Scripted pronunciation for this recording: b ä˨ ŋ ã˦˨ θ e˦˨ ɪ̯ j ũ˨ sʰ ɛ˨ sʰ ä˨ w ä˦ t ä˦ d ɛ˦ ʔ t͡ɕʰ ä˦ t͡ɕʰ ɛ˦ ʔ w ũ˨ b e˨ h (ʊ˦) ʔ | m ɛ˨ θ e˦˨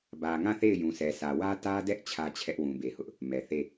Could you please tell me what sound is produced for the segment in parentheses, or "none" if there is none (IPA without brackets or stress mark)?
ʊ˦